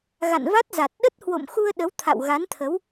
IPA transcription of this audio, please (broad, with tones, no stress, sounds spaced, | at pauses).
ɣ a̰˧˨ n v a˦˥ t̚ z a˨˩ t̚ ɗ ə˦˥ t̚ h w o̰˧˨ m x u˧ ə̯ ɗ ə˨˦ w t̪ʰ a̰˧˨ w ɣ a˨˦ n t̪ʰ ə˨˦ w